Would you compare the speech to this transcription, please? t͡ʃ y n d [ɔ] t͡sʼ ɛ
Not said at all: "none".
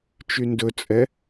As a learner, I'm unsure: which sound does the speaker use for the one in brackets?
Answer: ɵ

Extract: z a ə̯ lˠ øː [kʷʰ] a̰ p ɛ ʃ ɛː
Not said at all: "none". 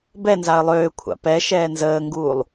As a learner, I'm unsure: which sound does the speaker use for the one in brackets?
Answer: kʷʰ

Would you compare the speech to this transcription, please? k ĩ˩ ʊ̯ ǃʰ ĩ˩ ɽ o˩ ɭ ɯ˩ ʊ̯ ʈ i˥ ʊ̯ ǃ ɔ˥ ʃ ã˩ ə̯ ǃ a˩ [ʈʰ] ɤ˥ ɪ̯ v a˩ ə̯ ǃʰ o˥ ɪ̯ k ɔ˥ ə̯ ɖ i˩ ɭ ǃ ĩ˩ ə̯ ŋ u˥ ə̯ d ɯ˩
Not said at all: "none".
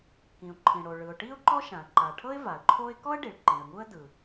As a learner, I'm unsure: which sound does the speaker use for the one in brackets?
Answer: ʈʰ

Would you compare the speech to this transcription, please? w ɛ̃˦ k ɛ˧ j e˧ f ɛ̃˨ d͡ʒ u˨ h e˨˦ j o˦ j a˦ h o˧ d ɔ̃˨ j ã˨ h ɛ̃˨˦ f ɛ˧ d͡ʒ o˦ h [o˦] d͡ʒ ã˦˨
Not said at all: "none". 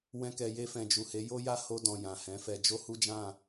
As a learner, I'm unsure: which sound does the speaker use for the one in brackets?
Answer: u˦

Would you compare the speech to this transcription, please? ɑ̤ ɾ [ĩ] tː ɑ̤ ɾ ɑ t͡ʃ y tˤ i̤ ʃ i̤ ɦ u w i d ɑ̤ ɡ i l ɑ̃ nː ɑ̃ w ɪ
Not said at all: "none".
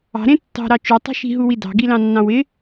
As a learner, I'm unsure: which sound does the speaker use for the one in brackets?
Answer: ẽ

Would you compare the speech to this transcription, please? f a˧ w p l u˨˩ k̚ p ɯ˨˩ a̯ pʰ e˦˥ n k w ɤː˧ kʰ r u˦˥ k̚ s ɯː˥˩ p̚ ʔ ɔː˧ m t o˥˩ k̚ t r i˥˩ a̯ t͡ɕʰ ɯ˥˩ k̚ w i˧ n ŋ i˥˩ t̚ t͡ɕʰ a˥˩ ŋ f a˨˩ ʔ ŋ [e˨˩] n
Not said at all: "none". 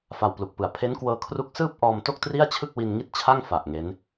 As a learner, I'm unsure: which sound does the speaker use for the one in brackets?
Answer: e˦˥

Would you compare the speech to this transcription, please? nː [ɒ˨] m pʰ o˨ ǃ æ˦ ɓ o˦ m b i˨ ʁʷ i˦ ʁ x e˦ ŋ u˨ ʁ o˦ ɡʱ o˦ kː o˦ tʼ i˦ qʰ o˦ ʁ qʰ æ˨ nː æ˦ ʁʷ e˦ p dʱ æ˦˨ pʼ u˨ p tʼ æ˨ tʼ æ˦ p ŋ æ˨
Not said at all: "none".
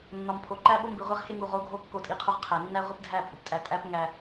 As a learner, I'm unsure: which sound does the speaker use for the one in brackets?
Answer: ɒ˨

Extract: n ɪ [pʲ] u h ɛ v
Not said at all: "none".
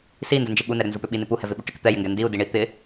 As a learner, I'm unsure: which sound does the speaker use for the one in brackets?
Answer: p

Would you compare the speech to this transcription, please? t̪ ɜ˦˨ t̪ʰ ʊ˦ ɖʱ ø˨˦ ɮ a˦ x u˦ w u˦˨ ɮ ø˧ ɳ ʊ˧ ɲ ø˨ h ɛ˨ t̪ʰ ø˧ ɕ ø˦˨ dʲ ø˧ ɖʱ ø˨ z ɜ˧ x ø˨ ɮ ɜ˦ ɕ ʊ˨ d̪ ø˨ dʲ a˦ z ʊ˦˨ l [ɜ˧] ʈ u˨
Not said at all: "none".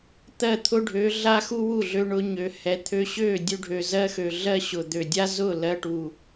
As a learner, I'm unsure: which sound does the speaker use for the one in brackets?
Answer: ɜ˧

